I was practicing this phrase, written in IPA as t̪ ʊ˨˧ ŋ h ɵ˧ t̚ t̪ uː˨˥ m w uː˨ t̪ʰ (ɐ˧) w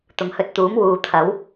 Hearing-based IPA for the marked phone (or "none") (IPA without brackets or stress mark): ɐ˨˥